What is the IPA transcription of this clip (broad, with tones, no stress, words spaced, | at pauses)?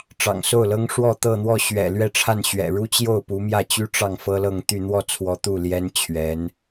ʈ͡ʂɑ̰˨˩ŋso˥˩ʊ̯lɤ˥ŋʂwɔ˥˧ t̪ɤ˥˧n̪wɔ˥˩ ɕɥɛ̰˨˩ lɥɛ˥˧ʈ͡ʂʰa˥˩nɕɥɛ̰˨˩ ɻu˥t͡ɕjo˥˩ʊ̯ pu˧˥mjä˥˩t͡ɕy˥ ʈ͡ʂɑ˥˩ŋfɤ˥lɤ˥˧ŋt̪y˥˧ n̪wɔ˥˩t͡sʰwɔ˧˥ t̪u˥˩ljɛ˥n t͡ɕʰɥɛ˧˥n